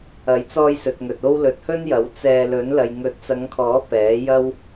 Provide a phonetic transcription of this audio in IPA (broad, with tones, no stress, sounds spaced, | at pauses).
ɐ˨˥ j t͡s ɔː˧ j s ɵ˨ t̚ ŋ ɵ˨ t̚ o˥ w l ɵ˨˥ t̚ h ɵ˥ n j ɐ˨˥ w t͡s ɛː˧ l ɵ˨˥ n l ɐ˨ j ŋ ɵ˨˥ t̚ t͡s ɐ˨˧ ŋ kʰ ɔː˨˥ p ɛː˨˥ j ɐ˥ w